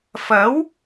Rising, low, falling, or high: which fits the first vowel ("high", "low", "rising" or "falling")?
rising